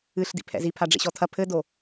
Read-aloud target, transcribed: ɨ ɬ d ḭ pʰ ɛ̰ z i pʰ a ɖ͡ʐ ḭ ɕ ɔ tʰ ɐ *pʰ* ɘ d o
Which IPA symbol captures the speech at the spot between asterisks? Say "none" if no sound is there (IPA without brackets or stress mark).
pʰ